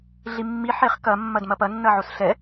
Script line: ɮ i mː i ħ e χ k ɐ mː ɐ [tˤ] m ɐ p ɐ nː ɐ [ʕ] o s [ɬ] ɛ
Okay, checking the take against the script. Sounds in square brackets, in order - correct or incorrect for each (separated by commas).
incorrect, correct, correct